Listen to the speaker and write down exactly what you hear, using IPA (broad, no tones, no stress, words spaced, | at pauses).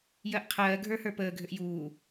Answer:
jɜʔqʰɜː ɡʱə˞hə˞pəː ɡʱʏʔjuː